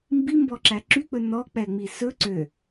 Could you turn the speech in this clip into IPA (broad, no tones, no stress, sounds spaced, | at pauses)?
m b i m b ɔ ǁ æ ǁ y k͡p ɵ n ɔ k͡p ɛ ŋ͡m i s ɵ ǀ ø